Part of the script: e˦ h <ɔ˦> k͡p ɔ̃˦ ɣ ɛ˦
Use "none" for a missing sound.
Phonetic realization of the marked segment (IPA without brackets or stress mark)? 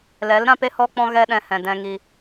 ɔ˦